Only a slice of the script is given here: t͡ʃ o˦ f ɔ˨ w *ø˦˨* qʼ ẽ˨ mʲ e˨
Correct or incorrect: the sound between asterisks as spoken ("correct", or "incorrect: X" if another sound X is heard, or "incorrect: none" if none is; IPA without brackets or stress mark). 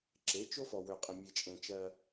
incorrect: ø˨